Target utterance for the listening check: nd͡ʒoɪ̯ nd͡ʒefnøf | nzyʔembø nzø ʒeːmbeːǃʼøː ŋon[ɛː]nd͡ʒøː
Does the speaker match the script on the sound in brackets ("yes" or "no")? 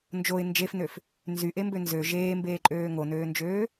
no